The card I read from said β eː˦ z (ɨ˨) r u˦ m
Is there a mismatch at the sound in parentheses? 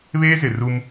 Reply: yes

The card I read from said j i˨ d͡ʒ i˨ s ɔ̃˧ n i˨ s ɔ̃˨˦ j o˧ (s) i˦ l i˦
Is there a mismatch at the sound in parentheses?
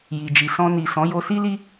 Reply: no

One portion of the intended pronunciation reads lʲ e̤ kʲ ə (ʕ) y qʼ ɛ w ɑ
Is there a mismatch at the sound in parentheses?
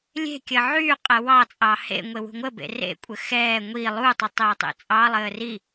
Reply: no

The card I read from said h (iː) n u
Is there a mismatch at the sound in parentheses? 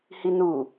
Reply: yes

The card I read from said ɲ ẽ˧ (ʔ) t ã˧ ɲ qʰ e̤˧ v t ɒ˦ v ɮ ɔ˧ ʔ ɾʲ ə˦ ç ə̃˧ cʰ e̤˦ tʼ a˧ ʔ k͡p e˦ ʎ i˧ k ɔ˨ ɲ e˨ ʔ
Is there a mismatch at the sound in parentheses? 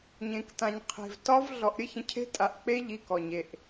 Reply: yes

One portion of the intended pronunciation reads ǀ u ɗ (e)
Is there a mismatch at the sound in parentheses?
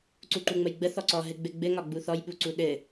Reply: yes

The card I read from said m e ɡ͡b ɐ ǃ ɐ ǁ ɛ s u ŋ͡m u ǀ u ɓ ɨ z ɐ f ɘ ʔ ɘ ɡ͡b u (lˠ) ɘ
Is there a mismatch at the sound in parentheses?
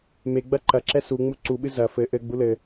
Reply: yes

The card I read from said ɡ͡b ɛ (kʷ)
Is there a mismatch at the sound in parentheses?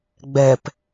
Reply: yes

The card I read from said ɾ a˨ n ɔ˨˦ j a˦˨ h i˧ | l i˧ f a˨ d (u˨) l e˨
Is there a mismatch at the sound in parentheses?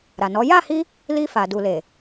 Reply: no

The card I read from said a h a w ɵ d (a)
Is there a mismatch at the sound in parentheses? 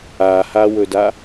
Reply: no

